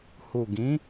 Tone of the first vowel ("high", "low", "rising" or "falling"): low